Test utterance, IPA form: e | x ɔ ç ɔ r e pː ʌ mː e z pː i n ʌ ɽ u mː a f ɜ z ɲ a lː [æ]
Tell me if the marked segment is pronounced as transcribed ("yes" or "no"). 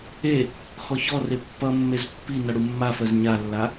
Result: no